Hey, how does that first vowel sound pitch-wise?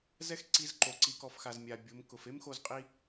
high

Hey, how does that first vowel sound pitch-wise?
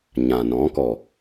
low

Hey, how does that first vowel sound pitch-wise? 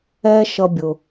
high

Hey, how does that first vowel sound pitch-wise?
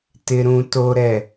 low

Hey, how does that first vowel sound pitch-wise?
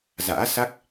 rising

